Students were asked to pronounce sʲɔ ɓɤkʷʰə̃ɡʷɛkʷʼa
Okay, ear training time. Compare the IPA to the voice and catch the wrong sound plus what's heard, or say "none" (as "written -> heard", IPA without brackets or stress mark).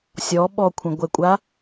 ɤ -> ɔ